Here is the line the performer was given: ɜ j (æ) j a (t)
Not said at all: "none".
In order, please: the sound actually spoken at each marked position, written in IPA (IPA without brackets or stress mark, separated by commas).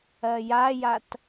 a, t